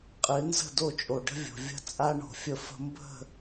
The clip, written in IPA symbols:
qʼɨ˨˦nzə̤˦˨ do˦˨t͡ʃʼo˨ɖə̤˦vʲo̤˨ vʲə̤˦t͡sʼa˦ɳo̤˨ fʲə˦fə̤˦ mbə̤˦˨

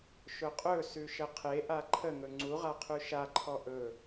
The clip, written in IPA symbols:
ʃʊqʼɵsʉ ʃəqʰeʔa ǃʰəŋɵ ŋ͡ǀuʁa qʰʉʃaǃʰɔ ʔɵ

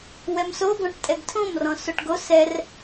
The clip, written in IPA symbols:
wɛmsoɡɔ̃ʈtʼɛɡ tʰõmrɔ̃ soʈɡos ɛr

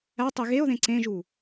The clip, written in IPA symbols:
ætˤi ɣeo̯ðẽ ǀẽʒu

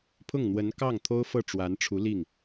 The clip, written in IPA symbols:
pʰʊ˥˩ŋn̪wə˧˥nkɑ˥˩ŋ t̪ʰo˥ʊ̯fɤ˥˩ ʈ͡ʂwa˧˥nʈ͡ʂʰu˧˥li˥˩ŋ

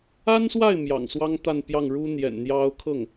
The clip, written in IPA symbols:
a˥nswa˥˩ɪ̯ mjɑ̰˨˩ŋswɑ˥ŋt̪a˥˧n pjɑ˥˩ŋɻu˥ n̪jɛ̰˨˩nn̪jɑ˥ʊ̯ kʰɤ˥˩ŋ

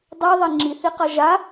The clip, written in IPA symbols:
dˤiðˤe ŋ͡ǁiθiqʌ ʒa

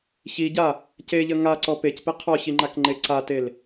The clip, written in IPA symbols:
çiɟa | ceʎə ŋaǀɔ pecpi qʰɔçiŋ͡ǃakŋ͡ǃe ǀatel

